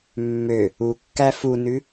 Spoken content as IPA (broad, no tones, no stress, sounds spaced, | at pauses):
mː ø | u kː æ f u n ʉ